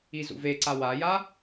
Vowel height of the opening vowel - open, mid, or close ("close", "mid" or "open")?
close